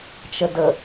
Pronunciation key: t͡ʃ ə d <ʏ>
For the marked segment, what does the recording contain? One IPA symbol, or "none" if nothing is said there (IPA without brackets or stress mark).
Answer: ə